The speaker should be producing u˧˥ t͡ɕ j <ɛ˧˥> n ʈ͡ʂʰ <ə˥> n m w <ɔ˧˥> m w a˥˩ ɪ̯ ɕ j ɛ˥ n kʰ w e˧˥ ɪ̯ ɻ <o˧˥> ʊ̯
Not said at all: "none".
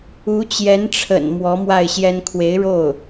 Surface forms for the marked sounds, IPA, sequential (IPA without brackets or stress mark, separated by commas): ɛ˧˥, ə̰˨˩, ɔ˧˥, o˥˩